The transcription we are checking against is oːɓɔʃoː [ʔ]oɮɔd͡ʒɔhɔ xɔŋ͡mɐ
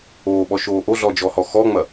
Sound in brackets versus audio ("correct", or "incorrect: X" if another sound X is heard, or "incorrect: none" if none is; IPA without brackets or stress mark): correct